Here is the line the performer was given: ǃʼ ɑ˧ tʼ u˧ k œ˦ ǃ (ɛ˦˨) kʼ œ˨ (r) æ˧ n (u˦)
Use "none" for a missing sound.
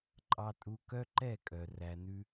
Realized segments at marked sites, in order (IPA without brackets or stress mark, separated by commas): ɛ˦˨, r, ʉ˦